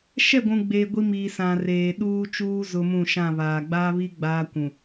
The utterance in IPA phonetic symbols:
ʃ ɛ˦˨ ɡʷ ũ˨ ɡ͡b eː˨ ɡʷ i˦ m iː˨ s ã˨ r eː˨ ɗ uː˦ t͡ʃ uː˦ z ʊ˦ m ũ˦˨ ʃ ã˦˨ β aː˨ ɡ͡b aː˦ β i˦ ɡ͡b aː˦ kʷ ũ˨

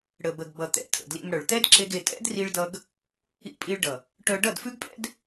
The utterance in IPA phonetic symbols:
ɽ ə˨ b ə˨ ɡ b ʌ˨ t̪ ɛ̰˨ tʰ ə̰˨ d l ḭ˧ m ɽ œ˨ ɭ t̪ ɛ˦ d ǁ e˦ ɡ e˧ tʼ ɛ̰˦ d r i˧ ɭ d ʌ˧ ɡ | ḭ˧ pʼ i˧ ɭ ɖ ʌ˨ | ʈ œ˧ ɖ ʌ˦˨ d f ʉ˦ ɡ pʼ ɛ̰˦ d

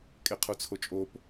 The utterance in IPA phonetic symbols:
kʼ e qʰ u t͡sʰ o t͡ʃʼ o p

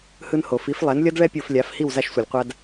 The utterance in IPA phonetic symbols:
h ɯ˧ n h o˩ f i˩˥ f lˠ ɛ˩˥ n lʲ ʌ˥ d ɭ ɛ˥ pʲ o˧ f lʲ a˩˥ f h i˥˩ w z a˧ ʃ sʷ ʌ˩ lʲ qʷ a˧ d

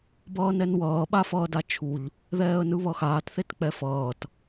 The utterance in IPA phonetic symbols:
b ʌː n ɛ n w ʌː ɓ a f ʌː d a t͡ʃʰ u ʎ | ð ɛː ə̯ n ɯ β ʌ x aː t θ e t k͡p ɛ f ʌː t

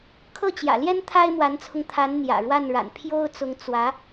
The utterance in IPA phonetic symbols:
kʰ ɤ˥˩ t͡ɕ j ä̰˨˩ l j ɛ˥ n t̪ʰ a˥ ɪ̯ m w a˧˥ n t͡sʰ ʊ˧ ŋ t̪ʰ a˧˥ n n̪ j ä̰˨˩ ɻ w a˥˩ n ɻ a̰˨˩ n pʰ j o˥ ʊ̯ t͡s ʊ˧˥ ŋ t͡s w ä˧˥

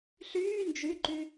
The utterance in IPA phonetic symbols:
ɬ yː n d͡ʒ y ǃ y

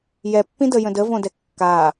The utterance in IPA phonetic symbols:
j ɛ pː ĩ d ə j ə̃ d ə v õ d ɛ kː a

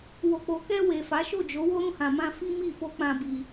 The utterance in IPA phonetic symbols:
w o˨ k͡p o˨ k ɛ˧ w e˨ f a˨˦ ʃ o˦˨ d͡ʒ o˨˦ w o˦ ɾ ũ˧ h ã˨ m ã˧ f i˦ m i˦˨ f o˧ k͡p ã˧ b i˧

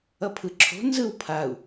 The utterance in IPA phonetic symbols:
ʌ pʰ ɯ ǁʰ o̤ n z ɯ w pʰ a u̯

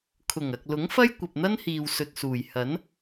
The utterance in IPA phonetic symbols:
kʰ ʊ˨˩ ŋ ɐ˨ k̚ l ʊ˨˥ ŋ f ɐ˥ j kʷ ɐ˨ p̚ n̪ ɐ˥ n h iː˨ w s ɵ˨ t̚ s uː˨˩ j h ɐ˨˥ n

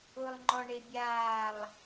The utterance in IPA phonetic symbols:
ʊ lˠ ŋ͡ǃ ɔ ɳ e bʲ aː lˠ

